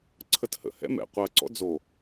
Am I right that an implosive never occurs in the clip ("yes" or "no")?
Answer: yes